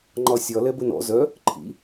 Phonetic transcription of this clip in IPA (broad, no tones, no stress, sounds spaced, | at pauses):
ŋ͡ǃ ɒ sʲ ɒ l ɛ b ə n ɔ̰ z œ | ǃʰ ḭ